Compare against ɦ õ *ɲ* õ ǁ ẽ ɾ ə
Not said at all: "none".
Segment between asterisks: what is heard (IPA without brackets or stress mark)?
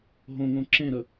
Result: ŋ